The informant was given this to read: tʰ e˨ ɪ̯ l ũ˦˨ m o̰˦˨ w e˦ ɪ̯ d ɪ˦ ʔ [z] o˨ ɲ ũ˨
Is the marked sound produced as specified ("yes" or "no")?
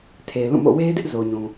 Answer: yes